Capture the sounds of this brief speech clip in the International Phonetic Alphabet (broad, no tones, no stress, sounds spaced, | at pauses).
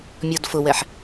mʲ ɔ d f ʊ w ɛ ħ